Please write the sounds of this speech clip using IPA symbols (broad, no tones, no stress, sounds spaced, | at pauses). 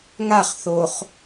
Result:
ŋ a χ θ o χ